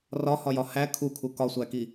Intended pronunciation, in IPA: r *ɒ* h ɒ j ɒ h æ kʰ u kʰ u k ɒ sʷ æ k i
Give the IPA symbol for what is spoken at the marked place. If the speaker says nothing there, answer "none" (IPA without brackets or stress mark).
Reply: ɒ